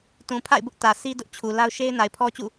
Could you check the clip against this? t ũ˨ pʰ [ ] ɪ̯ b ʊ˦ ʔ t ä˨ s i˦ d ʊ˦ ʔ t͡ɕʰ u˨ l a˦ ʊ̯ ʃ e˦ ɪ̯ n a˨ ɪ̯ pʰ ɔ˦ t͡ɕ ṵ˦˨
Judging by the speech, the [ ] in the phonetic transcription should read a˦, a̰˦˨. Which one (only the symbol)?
a̰˦˨